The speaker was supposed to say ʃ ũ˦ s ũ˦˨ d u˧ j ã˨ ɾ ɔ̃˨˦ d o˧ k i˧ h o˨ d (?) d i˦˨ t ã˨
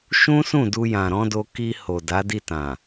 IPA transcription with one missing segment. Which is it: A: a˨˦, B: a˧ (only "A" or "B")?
A